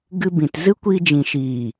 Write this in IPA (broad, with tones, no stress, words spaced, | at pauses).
ɡɨ˧ bĩ˨t zɨ˦kʷiː˧d͡ʒĩ˨ʃiː˨